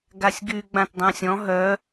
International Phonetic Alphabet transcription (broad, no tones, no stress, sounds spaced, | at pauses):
ɡ a sʲ ɡ y ɡ͡b ã t dˤ ã sʲ ɔ̃ ɦ œ